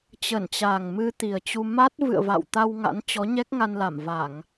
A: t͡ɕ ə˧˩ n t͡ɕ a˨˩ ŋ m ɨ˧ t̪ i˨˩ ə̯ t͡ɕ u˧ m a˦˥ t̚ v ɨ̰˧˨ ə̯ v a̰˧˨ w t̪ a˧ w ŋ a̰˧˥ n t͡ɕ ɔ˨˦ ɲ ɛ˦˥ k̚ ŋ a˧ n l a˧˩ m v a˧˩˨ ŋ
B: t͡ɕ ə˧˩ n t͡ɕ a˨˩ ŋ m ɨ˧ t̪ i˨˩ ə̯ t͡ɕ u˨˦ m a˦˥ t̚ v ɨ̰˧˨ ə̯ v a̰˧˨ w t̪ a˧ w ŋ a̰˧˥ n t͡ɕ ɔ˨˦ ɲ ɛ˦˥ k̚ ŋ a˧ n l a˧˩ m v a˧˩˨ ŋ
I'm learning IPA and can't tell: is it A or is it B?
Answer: A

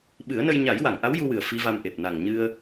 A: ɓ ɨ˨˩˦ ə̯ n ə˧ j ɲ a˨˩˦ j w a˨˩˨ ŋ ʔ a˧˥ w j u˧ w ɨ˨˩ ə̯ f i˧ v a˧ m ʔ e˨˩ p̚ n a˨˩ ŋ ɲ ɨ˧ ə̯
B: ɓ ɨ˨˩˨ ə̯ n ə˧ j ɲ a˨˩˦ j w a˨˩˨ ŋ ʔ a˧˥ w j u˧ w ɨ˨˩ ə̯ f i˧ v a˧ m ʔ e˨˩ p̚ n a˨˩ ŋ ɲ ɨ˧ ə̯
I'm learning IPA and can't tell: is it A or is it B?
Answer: A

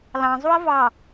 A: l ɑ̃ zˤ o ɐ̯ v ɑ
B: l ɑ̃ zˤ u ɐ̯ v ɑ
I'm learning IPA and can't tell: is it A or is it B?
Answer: B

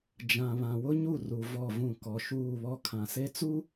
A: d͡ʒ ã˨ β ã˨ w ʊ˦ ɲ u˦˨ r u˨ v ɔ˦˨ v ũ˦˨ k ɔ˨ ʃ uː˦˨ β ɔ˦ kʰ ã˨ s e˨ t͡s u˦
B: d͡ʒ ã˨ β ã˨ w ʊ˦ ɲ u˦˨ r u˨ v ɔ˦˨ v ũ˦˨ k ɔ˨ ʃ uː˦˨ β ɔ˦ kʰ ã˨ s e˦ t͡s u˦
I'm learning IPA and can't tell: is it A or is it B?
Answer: B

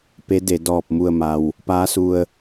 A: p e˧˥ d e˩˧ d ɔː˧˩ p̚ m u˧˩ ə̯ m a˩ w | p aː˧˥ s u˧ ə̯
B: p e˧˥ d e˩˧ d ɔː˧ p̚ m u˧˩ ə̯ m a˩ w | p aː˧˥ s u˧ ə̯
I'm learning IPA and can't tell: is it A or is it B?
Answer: A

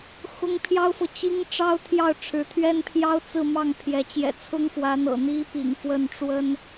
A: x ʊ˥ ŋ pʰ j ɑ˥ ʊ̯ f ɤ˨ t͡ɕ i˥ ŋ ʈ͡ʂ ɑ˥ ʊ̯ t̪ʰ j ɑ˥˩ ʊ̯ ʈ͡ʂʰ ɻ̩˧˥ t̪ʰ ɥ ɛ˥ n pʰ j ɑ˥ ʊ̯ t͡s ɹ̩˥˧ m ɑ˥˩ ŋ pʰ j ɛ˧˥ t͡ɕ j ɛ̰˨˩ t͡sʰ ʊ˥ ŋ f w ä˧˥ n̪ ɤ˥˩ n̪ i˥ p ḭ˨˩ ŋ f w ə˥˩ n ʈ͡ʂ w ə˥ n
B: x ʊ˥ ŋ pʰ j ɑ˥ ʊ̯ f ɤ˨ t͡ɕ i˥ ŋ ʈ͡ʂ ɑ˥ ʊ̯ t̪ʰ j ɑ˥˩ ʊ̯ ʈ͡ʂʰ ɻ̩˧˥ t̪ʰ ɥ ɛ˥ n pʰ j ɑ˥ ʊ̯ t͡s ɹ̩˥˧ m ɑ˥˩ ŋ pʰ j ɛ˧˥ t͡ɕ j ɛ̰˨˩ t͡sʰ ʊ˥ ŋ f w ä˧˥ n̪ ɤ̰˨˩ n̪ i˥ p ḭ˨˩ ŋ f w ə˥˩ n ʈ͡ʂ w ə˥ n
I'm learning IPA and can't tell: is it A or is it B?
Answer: B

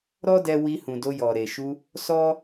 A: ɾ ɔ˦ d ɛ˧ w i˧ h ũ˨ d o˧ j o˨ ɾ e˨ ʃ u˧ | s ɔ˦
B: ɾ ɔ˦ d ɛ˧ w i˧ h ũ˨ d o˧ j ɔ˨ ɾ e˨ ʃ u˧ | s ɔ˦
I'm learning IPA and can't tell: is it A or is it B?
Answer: B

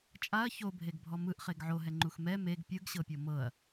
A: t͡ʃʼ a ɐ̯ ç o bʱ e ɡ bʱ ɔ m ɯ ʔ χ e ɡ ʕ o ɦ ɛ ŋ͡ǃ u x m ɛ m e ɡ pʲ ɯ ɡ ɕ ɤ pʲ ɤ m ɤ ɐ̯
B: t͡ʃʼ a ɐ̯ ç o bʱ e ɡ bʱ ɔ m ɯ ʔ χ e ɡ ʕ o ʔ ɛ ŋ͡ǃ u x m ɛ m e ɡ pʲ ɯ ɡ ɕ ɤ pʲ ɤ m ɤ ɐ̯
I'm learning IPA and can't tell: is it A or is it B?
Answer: A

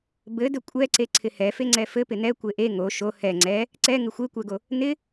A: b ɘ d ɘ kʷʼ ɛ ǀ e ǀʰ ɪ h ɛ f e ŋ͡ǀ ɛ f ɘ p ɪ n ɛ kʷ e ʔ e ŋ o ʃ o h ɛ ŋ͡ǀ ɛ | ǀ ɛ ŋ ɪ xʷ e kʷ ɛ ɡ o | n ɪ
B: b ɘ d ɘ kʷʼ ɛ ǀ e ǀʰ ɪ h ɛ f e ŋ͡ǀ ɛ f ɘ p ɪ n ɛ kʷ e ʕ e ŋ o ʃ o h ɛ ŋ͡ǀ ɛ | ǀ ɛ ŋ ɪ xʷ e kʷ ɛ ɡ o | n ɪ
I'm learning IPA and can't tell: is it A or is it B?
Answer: A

